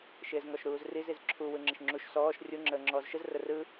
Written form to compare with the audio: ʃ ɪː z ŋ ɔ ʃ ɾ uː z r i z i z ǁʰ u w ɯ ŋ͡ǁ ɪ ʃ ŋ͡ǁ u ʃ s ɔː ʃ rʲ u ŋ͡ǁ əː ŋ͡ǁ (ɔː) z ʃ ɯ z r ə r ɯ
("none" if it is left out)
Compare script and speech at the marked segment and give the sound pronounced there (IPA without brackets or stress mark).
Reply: ɔː